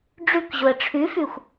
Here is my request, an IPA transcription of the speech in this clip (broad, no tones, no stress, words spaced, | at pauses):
ɖ͡ʐʉkʑʊə̯ ʈ͡ʂʰʉfʉxʷ